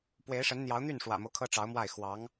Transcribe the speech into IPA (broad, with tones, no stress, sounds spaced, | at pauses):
p w e˧˥ ɪ̯ ʂ ə˧˥ n n̪ j ɑ˧˥ ʊ̯ n̪ y˥˩ n ʂ w ä̰˨˩ m o˦ ʊ̯ kʰ ɤ˥ ʈ͡ʂ ɑ˧˥ ʊ̯ m w a˥˩ ɪ̯ x w ɑ˧˥ ŋ